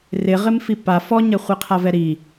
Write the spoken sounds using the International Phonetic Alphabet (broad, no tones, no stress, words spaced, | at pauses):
rɪ ʁɪmfipa fɔɲɛχʷi qʰavɛɾi